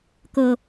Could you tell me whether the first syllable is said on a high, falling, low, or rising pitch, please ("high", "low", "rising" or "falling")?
low